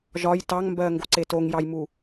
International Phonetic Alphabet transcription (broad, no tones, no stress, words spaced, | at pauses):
ʒɒj tɑŋmbɜŋɡo ǀetoŋjɑjmu